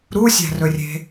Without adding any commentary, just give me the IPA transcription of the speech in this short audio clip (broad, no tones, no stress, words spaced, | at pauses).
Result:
ɾusʲæ̤rɵrʲe̤